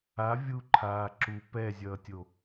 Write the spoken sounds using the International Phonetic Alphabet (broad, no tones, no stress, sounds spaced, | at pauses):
a vʲ u ǃʰ aː ǁ u p ɛ zʲ ʌː tʲ o